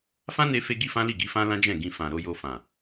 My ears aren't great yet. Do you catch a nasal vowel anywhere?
yes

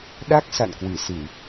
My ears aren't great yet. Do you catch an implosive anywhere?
yes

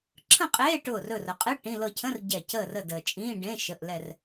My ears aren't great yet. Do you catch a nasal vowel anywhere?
yes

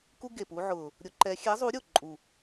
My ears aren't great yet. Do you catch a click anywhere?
yes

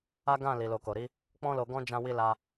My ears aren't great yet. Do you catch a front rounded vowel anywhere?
no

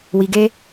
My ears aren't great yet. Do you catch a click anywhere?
no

